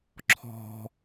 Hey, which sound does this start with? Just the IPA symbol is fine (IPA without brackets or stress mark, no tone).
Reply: ǁʰ